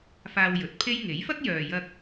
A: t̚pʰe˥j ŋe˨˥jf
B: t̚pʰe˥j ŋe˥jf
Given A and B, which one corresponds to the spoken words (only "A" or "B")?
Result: A